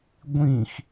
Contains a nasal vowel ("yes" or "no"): yes